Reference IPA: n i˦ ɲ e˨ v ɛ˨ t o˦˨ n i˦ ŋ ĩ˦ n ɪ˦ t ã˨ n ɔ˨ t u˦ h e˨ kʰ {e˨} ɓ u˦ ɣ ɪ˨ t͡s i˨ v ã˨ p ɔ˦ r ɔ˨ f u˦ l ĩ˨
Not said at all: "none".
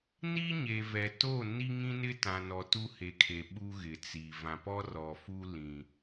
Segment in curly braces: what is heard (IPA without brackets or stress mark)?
e˨